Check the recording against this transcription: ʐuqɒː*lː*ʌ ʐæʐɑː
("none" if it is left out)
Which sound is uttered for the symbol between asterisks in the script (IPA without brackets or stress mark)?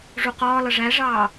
l